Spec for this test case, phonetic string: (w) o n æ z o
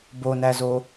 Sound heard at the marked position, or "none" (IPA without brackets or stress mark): b